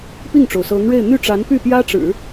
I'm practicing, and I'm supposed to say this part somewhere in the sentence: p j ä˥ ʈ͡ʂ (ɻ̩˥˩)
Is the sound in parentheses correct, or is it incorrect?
incorrect